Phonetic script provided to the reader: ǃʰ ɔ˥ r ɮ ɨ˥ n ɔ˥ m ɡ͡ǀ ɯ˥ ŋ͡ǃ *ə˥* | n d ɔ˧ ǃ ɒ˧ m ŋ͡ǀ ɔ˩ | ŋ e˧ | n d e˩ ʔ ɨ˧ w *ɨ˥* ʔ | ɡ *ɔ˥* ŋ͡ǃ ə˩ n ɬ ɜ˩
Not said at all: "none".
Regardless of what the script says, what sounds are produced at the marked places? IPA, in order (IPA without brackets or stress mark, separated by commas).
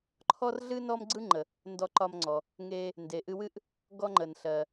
ə˩, ɨ˥, ɔ˧